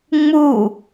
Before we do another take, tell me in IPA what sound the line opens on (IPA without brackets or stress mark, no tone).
ŋ͡m